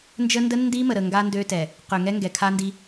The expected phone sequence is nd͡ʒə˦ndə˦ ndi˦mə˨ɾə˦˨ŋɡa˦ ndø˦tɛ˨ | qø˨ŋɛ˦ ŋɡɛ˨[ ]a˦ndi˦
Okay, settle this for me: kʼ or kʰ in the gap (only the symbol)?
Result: kʰ